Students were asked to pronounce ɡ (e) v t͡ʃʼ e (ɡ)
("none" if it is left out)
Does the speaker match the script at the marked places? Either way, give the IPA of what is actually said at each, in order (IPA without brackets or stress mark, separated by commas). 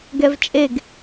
ɛ, ɡ